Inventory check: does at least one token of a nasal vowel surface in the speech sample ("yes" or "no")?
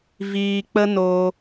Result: no